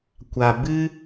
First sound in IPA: kʷ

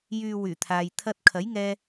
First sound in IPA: j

